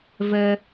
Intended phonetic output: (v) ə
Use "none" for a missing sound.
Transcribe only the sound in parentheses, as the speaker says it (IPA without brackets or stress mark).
v